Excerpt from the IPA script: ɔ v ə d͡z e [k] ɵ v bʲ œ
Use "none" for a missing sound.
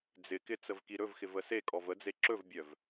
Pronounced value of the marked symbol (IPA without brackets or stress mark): ǁ